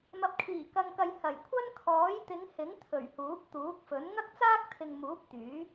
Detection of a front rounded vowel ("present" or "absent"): present